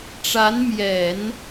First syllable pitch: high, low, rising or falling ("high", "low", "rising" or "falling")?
rising